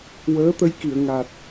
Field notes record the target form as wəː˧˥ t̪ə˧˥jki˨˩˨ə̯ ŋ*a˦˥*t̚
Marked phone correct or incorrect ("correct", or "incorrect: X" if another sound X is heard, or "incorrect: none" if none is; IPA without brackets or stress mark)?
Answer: incorrect: a˨˩